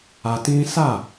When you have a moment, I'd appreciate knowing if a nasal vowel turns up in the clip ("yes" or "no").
yes